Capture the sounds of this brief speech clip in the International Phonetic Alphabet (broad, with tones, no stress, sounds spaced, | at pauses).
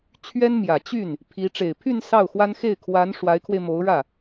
t͡ɕʰ ɥ ɛ˥ n m j ä˨˩ t͡ɕ y˥˩ n | pʰ i˧˥ ʈ͡ʂ e˨˩ ɪ̯ pʰ y˥˧ n s ɑ˥˩ ʊ̯ x w a˥ n x e˥˩ ɪ̯ kʰ w a˧˥ n ʂ w a˧˥ ɪ̯ kʰ w e˧ ɪ̯ m o˧˥ ʊ̯ ɻ ä˥˩